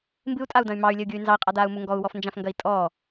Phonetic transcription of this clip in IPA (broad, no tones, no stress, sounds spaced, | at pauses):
m b ɨ u̯ tʼ a u̯ d ɐ̃ y̯ m ɑ y̯ lʲ ə u̯ ɡʲ u y̯ n z ɑ i̯ qʼ a d aː u̯ m u ŋ ɡ ɔ u̯ w ɔ f n d͡ʒ ã f ŋ ɡ ɐ i̯ tʼ ɔ